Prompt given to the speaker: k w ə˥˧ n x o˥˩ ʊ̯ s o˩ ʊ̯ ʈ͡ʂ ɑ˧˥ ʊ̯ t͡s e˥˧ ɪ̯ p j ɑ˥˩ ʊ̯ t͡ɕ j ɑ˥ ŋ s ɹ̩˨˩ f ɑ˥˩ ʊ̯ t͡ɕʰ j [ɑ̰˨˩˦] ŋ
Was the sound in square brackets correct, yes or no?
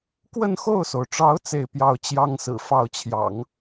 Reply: yes